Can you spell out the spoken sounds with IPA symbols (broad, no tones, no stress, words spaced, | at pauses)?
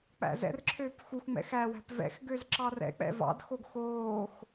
k͡pæ̰zɛ̰rǁʰøːp xuxŋ͡mɛ̰ xæwæ̤p vɛ̰xɡøz ǁɑrɛ̰k͡pɛ̰ vɑ̰dxoɡ xoːx